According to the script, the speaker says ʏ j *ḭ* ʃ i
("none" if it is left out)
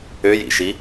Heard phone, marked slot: ḭ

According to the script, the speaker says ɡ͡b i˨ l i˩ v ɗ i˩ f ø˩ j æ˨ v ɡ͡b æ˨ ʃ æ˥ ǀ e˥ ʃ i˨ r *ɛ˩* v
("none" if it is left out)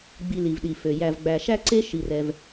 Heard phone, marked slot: ɛ˨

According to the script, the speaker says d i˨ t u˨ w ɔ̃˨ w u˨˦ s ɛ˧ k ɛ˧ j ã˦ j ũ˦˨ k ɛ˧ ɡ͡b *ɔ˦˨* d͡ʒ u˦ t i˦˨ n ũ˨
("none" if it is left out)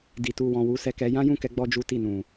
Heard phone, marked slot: ɔ˧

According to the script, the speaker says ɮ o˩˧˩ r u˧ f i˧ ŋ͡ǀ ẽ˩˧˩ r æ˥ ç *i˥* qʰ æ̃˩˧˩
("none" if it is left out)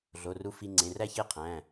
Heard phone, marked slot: e˥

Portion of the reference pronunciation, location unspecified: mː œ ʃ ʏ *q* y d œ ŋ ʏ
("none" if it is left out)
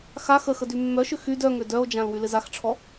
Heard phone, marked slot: x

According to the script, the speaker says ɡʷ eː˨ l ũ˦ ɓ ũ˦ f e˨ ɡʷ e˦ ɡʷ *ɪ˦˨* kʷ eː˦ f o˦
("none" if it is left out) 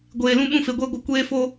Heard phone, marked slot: ɪ˦˨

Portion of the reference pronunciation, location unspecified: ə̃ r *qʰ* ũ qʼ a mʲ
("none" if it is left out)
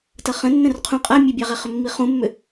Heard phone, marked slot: qʰ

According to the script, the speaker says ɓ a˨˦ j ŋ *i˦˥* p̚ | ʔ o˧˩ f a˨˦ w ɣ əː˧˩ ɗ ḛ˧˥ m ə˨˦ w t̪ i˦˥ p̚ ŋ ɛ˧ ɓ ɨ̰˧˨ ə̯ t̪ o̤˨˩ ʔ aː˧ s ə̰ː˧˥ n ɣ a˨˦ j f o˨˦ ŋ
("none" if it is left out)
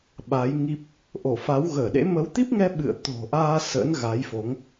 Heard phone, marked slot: i˦˥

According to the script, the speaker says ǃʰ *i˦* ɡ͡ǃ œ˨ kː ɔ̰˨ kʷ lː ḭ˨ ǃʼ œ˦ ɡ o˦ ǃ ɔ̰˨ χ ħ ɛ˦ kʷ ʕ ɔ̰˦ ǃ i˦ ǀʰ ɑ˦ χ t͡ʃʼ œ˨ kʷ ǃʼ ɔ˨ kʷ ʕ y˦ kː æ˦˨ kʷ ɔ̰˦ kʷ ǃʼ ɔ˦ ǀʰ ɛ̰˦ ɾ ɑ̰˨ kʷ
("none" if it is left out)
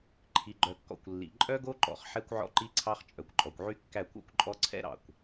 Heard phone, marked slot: i˨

